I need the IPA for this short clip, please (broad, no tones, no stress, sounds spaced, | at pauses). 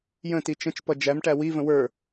j ə̃ t i t͡ʃ ə̃ t͡ʃ p ʌ d͡ʒ æ m ʈ æ w i v ə̃ w ə˞